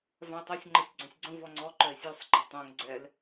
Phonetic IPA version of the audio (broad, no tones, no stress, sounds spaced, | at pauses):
v ã e̯ tˤ ɜ sʲ ŋ͡ǃ ɤ sʲ ɡ͡ǀ œ̃ sʲ ɡ͡ǀ ə̃ v ɔ ŋ͡ǀ ɔ ǃ œ e̯ sʲ œ sˤ ɡ͡ǃ ɘ tˤ õ ŋ ɡ͡ǀ ɛ l